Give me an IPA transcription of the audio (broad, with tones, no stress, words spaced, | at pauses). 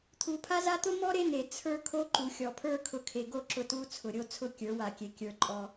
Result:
t̪ʰu˨pʰa˦za˦ t̪ʊ˦mɔ˦ ɾe˦n̪e˨ t͡sʰə˞˦ kʰo˦ǃu˨xʲɔ˨pʰə˞˦ kʰʊ˨˦kʰe˨ɡo˦˨ ǁʊ˦tu˦ t͡sʰʊ˨ɾʲo˦t͡sʰʊ˦ kʲə˞˨˦wa˨ kʲe˨ kʲə˞˨ ǃʼɔ˦